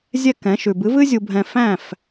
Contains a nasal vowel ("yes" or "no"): yes